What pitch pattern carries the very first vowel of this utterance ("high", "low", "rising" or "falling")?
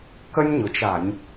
high